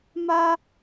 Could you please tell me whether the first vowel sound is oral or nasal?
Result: oral